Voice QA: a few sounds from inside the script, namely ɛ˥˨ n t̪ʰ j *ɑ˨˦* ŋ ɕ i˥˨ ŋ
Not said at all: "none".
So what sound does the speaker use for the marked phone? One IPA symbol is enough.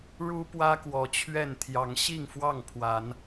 ɑ˨˦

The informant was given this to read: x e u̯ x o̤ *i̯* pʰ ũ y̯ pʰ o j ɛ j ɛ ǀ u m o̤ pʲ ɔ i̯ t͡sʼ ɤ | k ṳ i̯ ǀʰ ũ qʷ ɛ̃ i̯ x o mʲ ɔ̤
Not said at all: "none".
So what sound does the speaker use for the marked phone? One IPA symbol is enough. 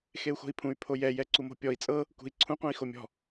i̯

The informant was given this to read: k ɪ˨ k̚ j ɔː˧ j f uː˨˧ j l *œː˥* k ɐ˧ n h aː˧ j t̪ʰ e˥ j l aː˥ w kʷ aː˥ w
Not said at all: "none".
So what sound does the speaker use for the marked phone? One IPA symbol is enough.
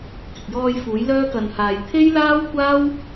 œː˥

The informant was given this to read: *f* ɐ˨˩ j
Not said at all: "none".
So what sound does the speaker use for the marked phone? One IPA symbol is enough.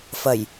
f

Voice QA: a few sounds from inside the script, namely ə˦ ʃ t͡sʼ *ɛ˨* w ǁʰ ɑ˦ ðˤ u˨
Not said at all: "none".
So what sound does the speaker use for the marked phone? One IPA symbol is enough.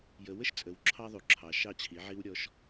ə˨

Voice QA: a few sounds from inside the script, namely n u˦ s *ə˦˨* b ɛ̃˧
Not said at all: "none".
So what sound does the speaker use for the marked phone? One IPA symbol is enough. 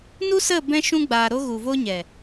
ə˦˨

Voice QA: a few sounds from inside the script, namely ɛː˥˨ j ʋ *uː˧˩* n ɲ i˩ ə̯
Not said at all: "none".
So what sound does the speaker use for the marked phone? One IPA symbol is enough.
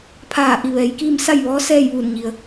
uː˧˩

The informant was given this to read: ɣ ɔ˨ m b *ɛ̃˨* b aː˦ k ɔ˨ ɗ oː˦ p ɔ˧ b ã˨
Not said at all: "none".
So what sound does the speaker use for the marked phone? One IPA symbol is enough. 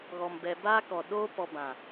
ɛ˨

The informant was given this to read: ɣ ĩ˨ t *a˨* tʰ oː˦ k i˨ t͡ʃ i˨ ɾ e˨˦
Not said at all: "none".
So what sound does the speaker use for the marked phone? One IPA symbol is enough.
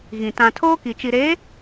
ã˨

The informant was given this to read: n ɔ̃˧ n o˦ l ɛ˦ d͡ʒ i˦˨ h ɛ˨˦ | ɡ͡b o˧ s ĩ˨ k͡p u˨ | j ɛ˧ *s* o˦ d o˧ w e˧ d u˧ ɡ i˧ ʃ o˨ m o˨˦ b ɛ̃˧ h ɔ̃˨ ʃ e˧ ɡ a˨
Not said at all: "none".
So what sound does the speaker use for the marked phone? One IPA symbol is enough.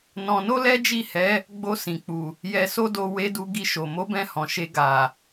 s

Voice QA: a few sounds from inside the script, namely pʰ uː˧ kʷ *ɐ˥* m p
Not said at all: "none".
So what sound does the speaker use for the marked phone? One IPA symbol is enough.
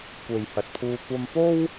ɐ˧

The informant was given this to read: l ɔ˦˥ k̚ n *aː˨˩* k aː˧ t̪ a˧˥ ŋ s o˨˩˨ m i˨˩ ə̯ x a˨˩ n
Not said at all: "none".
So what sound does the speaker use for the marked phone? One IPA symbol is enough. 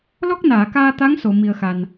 aː˨˩˨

